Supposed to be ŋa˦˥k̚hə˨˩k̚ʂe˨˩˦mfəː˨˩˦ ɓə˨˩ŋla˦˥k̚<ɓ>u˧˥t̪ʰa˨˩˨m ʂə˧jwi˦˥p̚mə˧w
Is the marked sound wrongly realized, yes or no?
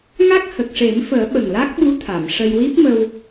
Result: no